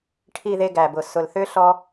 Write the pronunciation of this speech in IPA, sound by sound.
ʈʰ i˨ ð e˨ ɡ æ˨ b ʊ˨ s ʊ˨ l θ ʏ˦ ɬ ɔ˦

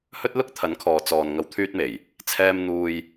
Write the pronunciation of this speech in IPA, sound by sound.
h ɵ˥ t̚ l ʊ˥ k̚ t̪ʰ ɐ˨˥ n kʰ ɔː˨ t͡s ɔː˨ n ŋ ɐ˨˧ w t̪ʰ yː˧ t̚ m e˨˩ j | t͡sʰ ɛː˧ m n̪ uː˧ j

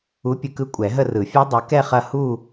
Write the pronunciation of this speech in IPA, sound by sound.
u˨˦ pʲ ɯ˨˦ k ɯ˦˥ kʷʼ ɛ˨˩˦ ɦ ə˥˧ r ɯ˨˩˦ fʲ e˦˥ dˤ ɯ˨˦ k ɛ˥˧ χ ɐ˥˧ h u˥˧

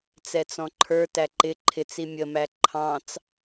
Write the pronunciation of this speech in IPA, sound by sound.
t͡s ɛ t͡s ɔ̃ ǃʰ ə˞ t æ ǃ ɪ ǃʰ ɪ t͡s i mʲ ə m æ ǃʰ ɑ̃ t͡s

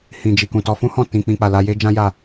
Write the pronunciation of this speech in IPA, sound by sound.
h ĩ˨ d͡ʒ i˨ k ũ˨ t ɔ˧ f ũ˦ h ɔ̃˦˨ t ĩ˧ k͡p ĩ˧ k͡p a˨ l a˧ j e˦ d͡ʒ ã˦ j a˦˨

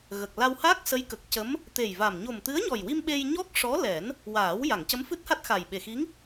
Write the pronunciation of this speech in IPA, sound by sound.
ɣ ə˨˩ k̚ l a˧ w h aː˦˥ k̚ s ə˧˥ j k ə˨˩ k̚ c ə˧˥ m | t̪ e˨˩ j v a˨˩ m ɲ o˨˩ m t̪ ɨ˧˥ ə̯ ɲ ɔ˨˩ j w i˧ m ɓ e˧ j ɲ ɔ˦˥ k̚ ʂ ɔ˧˥ l ɛ˨˩˦ n | w aː˨˩˦ w j a˨˩˨ ŋ c ə˧˥ m f ɨ˦˥ t̚ h a˦˥ t̚ x a˨˩ j ɓ e˨˩ x i˧˥ ŋ

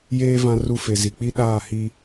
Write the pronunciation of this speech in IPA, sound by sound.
j eː˦ v ã˦ r u˦ f e˨ z i˨ k͡p i˦ ɗ aː˦˨ h i˦

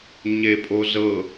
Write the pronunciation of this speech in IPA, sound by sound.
ɲ e pʼ o z ɤ

